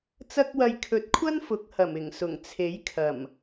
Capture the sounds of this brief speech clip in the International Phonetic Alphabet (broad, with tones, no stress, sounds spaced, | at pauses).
t͡s ɐ˧ k̚ w ɐ˨ j kʰ ɵ˨˥ t̚ kʷʰ ɐ˥ n f ʊ˨˥ k̚ h ɐ˨˩ m ɪ˨˩ ŋ s ʊ˨˩ ŋ t͡sʰ e˨˥ j kʰ ɐ˨˩ m